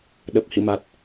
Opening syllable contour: low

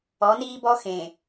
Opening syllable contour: rising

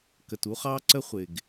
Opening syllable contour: low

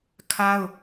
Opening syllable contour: high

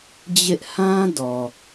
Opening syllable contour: high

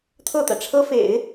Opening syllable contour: falling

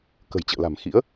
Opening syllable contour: low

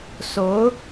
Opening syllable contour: rising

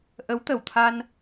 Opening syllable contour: rising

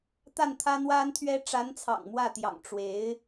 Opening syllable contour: falling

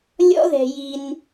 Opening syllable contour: high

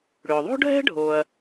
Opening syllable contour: low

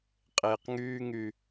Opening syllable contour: low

